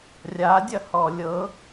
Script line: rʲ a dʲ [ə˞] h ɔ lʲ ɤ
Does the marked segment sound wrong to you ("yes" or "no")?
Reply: yes